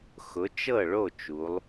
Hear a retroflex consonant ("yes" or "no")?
yes